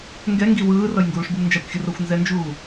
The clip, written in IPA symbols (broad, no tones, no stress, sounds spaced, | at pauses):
ŋ ɡ ɛ ŋ ɡ i w ɯː r ʌ j ŋ ɡ uː ʂ b ɯ m n d͡ʒ a kʷ xʲ ɯ r o xʷ n z ɛ n d͡ʒ uː